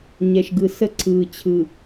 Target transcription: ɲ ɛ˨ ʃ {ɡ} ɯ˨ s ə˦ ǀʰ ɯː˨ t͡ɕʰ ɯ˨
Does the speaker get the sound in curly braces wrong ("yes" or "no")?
no